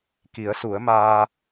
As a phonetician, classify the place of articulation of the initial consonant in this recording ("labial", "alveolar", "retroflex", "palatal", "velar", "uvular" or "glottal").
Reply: velar